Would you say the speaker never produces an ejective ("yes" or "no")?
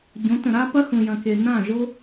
yes